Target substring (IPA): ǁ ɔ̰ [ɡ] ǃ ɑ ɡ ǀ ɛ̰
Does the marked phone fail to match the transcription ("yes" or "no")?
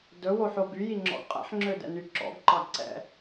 no